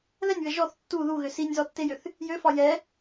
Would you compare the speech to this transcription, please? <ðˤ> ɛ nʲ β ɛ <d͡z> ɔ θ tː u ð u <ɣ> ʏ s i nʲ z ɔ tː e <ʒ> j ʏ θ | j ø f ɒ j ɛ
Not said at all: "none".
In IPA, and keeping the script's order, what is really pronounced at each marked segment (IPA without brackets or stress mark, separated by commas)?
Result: ð, ʒ, ɣ, none